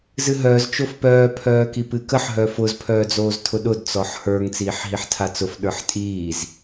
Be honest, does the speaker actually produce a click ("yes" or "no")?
no